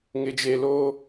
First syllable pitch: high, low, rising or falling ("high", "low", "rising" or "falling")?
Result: low